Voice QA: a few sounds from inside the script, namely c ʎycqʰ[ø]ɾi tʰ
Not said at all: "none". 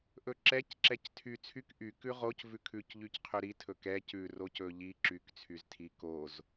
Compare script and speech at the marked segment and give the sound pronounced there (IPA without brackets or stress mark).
y